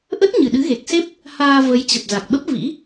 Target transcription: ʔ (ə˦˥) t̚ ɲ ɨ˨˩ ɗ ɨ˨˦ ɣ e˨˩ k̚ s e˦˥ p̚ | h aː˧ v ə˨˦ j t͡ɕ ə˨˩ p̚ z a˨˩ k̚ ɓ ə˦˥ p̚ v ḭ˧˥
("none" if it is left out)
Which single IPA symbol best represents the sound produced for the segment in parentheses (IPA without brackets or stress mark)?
ə˦˥